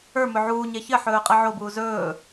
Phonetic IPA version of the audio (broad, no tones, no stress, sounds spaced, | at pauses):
ə˞ m ɵ ʕ uː ɲ e ç ɘ ħ ɵː qʼ ɛ ʕ o b uː z ɵː